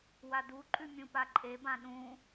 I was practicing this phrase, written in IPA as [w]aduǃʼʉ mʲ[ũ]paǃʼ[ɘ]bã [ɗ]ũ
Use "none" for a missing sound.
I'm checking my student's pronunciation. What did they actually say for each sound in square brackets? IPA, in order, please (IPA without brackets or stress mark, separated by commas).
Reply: w, ũ, e, ɗ